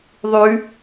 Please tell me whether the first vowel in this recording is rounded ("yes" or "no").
yes